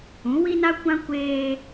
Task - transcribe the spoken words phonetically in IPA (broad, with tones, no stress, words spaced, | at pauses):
ũ˨˦wi˦na˦kʷã˦ kʷeː˦